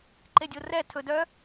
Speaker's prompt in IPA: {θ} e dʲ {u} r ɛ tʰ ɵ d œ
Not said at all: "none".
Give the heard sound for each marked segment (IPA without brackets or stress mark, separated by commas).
ǃ, o